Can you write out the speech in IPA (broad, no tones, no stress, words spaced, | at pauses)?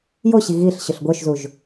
joɕi ɣiɬ ɕʊɬɡʷœʃzuʒ